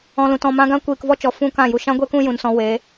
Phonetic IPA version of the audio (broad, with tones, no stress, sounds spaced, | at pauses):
ɔ̃˨ l ũ˨ t ɔ̃˨ m ã˧ ɡ ã˦ kʷ iː˨ k v ɔ˦ t͡ʃ ɔ˨ f ũ˦ k ã˦˨ j u˨ ʃ ã˦ ɡʷ e˦ k ũ˦ j ũ˨ n s ɔ̃˧ w e˨˦